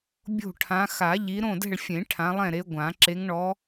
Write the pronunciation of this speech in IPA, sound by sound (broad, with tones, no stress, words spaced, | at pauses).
bʲo̤˦˨ʈʰã˨˦ xa˨˩˦ ʎi˨˦ ɾõ˦˨dɛ̤˦˨ɭfʲẽ˨˩˦ ʈʰã˨˦lˠɛ̃˦˨ɾe˨˦ ɡʷã˨˩˦ ǁe˨˦ŋɳɔ˨˦